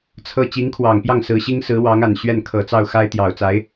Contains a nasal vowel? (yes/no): no